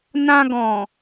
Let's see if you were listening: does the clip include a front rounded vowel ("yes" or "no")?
no